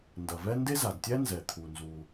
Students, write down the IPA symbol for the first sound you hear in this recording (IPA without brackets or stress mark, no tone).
n